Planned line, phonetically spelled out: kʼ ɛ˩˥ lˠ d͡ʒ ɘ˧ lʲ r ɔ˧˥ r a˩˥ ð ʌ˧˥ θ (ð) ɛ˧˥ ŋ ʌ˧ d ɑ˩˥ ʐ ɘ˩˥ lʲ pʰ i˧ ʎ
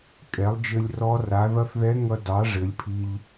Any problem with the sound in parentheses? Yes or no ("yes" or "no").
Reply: no